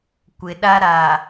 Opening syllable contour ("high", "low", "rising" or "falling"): low